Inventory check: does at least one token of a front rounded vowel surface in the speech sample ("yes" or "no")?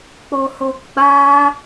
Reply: no